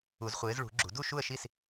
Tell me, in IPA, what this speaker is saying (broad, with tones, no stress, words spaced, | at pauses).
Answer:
u˨˩˦zχʷɪː˨˦zɭṳ˨˩˦ɡ͡ǁṳ˨˩˦ du˥˨ʃu˥˨ə̯ʃi˥˨s